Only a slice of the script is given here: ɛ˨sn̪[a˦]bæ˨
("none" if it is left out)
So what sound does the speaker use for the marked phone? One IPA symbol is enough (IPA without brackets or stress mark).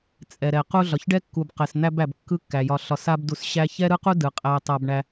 æ˦